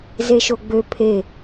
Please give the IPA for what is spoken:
z e ʃ o ɡ͡b ø pʰ e

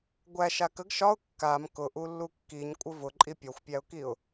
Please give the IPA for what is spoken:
ɡʷ æ ʃ a k ə ɡ ʃ ɒ ʊ̯ kː a m k ʊ ʔ u lː u kː i ɲ kʷʼ ə v ʊ ǃʼ i pʲ ɒ xʷ pʲ æ ʊ̯ k i ʊ̯

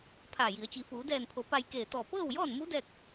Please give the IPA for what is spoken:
pʰ aː˧˩ j i˩˧ ə̯ t͡ɕ i˩˧ f uː˩˧ d ɛː˧˩ n pʰ o˩˧ p a˧ j k eː˧˩ t̪ ɔː˧˩ p ɤː˥˨ w j ɔː˥˨ n m u˧˥ d ɛː˥˨ k̚

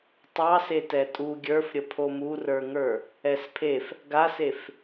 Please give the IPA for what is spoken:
tˤ ɑ s e t ɛ tʼ u ɡʲ ə˞ f ɾʲ ə pʰ o m u r ə˞ ŋ ə˞ | ɛ s pʰ e f | ɡ a s e f

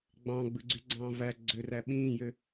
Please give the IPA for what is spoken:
ɡ͡b ɑ̃ ɡ͡b ɯ ɡ͡ǀ y ɡ͡ǀ ɑ̃ː v æ ɡ͡ǀ ø r æ ɓ ĩː j ø

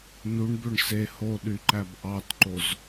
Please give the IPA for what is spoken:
n u ɳ b ø ɳ s e h o ɗ y ǃ æ b ʔ ɑ t ǃ o z

